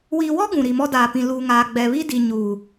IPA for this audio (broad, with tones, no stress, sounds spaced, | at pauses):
w iː˨ w ɔ˦ ɡ ũ˨ ɾ i˨ m ɔ˦ d aː˨ p ĩ˨ l uː˨ ŋ aː˨ ɡ͡b ɛ˨ β i˦ d i˨ ɲ uː˨